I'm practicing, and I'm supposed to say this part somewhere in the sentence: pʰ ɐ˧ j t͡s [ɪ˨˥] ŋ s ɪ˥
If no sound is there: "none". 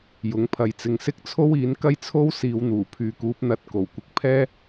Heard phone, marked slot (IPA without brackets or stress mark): ɪ˧